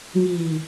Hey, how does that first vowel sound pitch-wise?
low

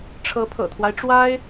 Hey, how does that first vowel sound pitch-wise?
rising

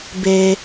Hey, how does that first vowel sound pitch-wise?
low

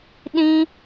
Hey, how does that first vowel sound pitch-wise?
high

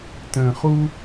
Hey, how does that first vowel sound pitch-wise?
low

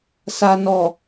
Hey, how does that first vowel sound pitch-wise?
low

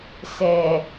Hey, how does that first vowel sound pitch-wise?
low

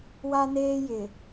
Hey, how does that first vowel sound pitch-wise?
high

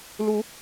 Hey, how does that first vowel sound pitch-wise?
rising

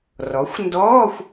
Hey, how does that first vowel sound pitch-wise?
rising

